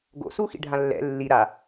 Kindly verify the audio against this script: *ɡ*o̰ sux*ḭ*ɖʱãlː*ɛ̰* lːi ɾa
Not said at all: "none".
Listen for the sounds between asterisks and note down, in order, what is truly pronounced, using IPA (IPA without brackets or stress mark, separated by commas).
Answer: ɡ, ḭ, ɛ̰